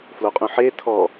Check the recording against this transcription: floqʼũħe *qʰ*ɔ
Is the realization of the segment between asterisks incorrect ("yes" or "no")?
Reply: yes